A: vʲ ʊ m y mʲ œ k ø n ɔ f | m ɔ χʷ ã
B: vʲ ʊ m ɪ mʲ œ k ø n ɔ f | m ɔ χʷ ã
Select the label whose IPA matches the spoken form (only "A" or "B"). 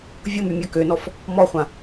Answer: A